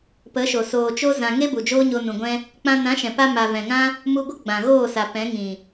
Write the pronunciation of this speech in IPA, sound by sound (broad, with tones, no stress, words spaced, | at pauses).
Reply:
pə˨˦ʃo˨ soː˨t͡ʃo˦ zã˧ ŋe˦bu˨ d͡ʒoː˦ɲo˧nũ˨ɡʷɛ̃˦ | k͡pã˧nã˨˦ʃɛ̃˨pa˧ ma˨vɛ̃˨ŋã˦ | mu˧ɡʷə˦ ɡ͡bã˨ɣoː˦˨sa˨ pɛ̃˨˦ŋĩ˨